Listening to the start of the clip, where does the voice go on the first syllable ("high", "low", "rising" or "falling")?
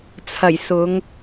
low